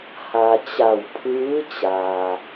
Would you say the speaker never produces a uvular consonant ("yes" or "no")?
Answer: yes